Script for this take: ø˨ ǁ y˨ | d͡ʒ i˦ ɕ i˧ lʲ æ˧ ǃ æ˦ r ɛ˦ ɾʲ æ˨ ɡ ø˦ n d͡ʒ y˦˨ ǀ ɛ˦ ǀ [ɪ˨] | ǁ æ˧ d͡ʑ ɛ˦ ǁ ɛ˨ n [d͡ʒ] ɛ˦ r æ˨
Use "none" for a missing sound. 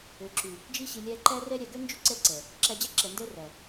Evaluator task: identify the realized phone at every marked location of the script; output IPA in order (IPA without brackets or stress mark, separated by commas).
ɛ˨, d